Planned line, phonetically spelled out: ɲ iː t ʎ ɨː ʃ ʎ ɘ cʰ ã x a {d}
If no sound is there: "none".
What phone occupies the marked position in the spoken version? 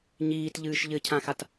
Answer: t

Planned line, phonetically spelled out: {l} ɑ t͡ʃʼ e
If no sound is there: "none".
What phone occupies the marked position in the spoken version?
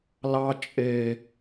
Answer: l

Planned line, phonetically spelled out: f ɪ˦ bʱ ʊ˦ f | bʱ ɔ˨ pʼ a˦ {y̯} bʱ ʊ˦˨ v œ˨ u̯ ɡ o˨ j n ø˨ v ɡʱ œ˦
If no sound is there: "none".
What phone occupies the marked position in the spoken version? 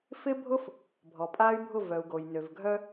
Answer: y̯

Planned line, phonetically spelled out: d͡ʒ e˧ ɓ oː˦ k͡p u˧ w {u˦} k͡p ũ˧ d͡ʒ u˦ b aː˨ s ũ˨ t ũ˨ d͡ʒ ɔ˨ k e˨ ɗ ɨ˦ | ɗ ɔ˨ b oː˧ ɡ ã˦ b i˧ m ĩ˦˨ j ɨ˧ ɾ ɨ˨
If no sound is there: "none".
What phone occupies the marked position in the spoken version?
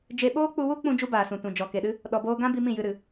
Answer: u˦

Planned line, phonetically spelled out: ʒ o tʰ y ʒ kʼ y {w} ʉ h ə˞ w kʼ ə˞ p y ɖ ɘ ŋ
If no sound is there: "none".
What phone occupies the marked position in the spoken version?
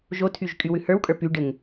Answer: w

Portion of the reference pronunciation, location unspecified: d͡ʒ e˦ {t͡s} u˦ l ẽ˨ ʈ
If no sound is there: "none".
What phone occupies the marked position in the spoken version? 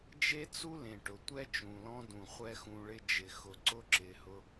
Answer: t͡s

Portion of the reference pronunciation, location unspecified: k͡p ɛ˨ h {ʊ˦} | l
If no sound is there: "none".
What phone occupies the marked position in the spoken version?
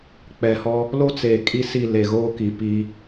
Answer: ɔ˦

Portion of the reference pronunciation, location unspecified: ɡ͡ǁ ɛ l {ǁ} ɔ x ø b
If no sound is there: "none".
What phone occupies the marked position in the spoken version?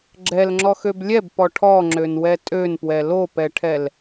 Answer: ŋ͡ǁ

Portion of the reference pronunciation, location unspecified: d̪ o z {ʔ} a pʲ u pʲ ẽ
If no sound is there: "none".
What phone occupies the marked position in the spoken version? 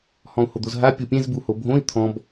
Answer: ɦ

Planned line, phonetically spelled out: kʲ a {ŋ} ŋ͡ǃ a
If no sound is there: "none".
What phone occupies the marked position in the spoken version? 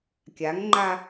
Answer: ŋ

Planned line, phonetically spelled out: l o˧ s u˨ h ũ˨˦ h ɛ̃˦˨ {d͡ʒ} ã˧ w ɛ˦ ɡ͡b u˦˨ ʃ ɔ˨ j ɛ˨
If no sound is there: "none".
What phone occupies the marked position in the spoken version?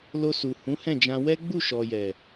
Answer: d͡ʒ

